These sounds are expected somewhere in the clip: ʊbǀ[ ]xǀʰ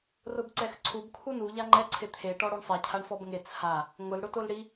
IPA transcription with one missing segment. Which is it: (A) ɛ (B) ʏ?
A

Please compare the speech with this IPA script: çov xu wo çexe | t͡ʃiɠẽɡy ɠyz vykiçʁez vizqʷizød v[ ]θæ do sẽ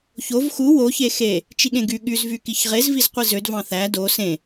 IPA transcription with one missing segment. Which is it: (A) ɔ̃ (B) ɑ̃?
B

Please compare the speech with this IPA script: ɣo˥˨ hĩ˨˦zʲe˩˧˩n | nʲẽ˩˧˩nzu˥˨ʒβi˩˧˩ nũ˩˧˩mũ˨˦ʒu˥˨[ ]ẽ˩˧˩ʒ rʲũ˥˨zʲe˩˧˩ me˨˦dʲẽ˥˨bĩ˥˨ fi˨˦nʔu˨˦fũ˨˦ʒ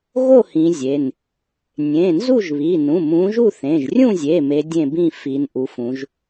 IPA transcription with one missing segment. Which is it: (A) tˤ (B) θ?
B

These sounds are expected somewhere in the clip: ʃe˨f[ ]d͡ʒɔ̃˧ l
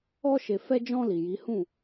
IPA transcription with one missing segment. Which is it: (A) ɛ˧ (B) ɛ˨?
A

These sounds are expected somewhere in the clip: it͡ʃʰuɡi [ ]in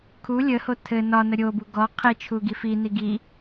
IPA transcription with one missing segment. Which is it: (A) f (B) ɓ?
A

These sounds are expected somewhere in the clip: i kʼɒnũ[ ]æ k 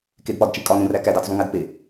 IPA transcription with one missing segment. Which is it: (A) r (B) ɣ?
A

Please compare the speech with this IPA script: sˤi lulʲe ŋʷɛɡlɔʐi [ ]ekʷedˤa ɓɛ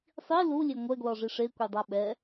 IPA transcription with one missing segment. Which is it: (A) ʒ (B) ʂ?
B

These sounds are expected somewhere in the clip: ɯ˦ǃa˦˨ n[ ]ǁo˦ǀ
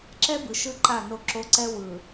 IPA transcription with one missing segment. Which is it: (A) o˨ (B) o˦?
B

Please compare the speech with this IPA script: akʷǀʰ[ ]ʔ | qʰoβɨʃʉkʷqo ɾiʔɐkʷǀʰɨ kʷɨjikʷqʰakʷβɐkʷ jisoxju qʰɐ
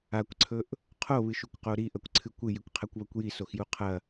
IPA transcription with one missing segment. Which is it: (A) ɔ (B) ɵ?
B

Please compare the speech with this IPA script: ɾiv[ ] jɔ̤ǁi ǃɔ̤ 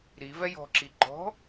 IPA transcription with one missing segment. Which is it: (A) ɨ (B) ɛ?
B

